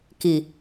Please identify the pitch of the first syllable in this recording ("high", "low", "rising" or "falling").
low